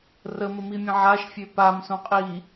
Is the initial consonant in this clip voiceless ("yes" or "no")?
no